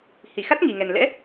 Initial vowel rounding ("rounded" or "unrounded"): unrounded